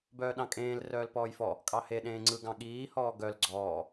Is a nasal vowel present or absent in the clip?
present